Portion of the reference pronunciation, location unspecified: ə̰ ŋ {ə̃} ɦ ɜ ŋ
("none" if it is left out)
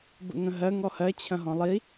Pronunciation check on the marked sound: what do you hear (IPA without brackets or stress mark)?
ə̃